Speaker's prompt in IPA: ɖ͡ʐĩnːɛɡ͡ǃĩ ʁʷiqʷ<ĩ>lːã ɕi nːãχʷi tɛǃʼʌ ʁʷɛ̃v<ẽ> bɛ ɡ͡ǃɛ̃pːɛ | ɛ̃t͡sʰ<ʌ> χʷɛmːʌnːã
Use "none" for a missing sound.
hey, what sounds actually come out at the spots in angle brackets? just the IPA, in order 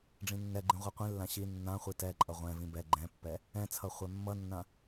ĩ, ĩ, ʌ

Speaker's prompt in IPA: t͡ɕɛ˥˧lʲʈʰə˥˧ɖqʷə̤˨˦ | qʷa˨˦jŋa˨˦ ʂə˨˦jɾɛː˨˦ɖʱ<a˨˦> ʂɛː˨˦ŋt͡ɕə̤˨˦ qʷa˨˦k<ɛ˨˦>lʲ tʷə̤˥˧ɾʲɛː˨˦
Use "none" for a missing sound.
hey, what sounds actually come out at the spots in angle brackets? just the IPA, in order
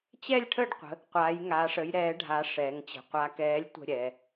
a˨˦, ɛː˨˦

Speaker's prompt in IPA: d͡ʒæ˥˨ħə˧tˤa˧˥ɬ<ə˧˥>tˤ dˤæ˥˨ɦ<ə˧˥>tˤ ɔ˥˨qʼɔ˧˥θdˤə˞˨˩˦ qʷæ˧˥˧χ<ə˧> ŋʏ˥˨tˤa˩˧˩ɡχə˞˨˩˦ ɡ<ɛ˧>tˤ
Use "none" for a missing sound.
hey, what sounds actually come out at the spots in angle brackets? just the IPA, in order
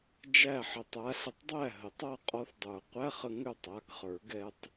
ə˧, ə˨˩˦, ə˧, ɛ˧

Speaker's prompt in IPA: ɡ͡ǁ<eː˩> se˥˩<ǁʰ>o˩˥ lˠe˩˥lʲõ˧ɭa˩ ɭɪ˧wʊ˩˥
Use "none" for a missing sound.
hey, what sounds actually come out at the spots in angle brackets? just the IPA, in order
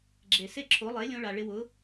e˩, ǁʰ

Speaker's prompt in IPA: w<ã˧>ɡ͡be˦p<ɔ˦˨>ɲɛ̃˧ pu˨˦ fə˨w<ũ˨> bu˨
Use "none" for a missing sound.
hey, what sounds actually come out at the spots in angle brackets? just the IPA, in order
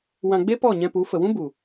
ã˧, ɔ˦˨, ũ˦

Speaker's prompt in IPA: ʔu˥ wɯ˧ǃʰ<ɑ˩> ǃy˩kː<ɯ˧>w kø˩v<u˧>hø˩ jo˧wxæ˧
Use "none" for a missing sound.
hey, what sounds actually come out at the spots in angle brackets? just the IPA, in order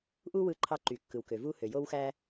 ɑ˧, ɯ˩, u˧

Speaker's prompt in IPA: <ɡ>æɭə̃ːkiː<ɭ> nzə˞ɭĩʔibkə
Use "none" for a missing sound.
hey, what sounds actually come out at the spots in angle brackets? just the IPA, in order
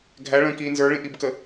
ɡʱ, none

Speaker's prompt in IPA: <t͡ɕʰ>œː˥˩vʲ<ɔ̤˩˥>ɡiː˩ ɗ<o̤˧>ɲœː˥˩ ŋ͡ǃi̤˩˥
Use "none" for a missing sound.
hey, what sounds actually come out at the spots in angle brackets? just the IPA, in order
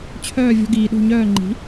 t͡ɕʰ, ɔ̤˧, o̤˥˩

